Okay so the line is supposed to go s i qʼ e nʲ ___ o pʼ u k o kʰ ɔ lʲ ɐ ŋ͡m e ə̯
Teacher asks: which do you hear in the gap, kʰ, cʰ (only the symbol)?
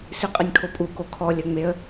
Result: kʰ